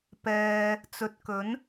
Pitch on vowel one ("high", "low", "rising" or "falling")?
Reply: low